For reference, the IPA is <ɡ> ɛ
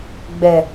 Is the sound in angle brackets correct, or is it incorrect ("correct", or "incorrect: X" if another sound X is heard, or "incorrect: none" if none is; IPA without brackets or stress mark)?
incorrect: ɡ͡b